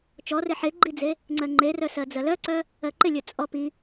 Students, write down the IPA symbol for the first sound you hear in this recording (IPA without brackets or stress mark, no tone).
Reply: t͡ʃ